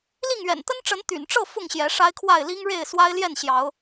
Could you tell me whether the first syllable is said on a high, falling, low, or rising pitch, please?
falling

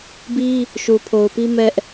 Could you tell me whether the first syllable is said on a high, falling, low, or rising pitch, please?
high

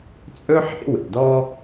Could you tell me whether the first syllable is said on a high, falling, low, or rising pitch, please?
high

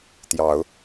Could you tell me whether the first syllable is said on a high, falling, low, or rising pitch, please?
rising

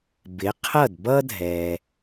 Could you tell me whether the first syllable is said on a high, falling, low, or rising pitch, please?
rising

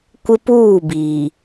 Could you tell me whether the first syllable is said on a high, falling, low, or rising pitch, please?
high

